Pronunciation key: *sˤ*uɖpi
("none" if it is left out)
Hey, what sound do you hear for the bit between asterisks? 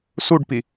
s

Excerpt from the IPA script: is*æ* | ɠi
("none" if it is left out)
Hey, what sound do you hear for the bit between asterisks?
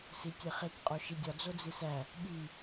æ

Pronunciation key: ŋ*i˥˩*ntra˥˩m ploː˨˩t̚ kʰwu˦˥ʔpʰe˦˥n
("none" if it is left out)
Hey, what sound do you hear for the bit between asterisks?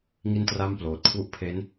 i˥˩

